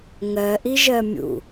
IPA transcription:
ŋɜʔiʒɜ mʲṵ

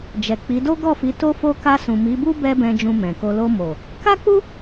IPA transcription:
d͡ʒɛ˨k͡pi˨˦ do˦ɡɔ˦˨fi˨˦ to˦fo˦ ka˧sũ˨ mi˨˦bu˦ bɛ˦bɛ̃˧ d͡ʒũ˧mɛ̃˨ko˧ lo˧mo˨ | ka˦k͡pu˦

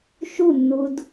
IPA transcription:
ʃunːud

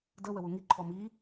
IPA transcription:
də wəwuŋiǃʰɔ mi

